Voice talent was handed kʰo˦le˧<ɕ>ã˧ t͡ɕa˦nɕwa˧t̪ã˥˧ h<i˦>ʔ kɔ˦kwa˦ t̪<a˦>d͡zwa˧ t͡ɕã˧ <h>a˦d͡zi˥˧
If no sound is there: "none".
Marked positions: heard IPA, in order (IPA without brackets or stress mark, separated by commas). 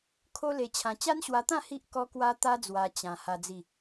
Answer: t͡ɕʰ, i˦, a˦, h